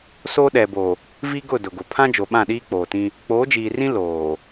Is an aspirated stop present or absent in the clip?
present